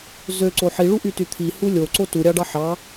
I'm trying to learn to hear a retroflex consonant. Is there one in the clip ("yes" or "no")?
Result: yes